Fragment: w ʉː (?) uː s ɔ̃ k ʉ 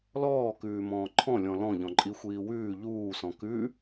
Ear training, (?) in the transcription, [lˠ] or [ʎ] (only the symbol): ʎ